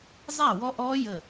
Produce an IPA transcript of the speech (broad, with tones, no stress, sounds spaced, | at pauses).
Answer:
zˤ æ˥˩ w ɔ˦˥ ʔ ɔː˦˥ j ə˧˩